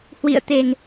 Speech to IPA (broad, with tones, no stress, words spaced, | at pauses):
hwḭ˧˨ə̯t̪e˨˩ŋ